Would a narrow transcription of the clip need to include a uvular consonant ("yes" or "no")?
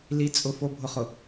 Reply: yes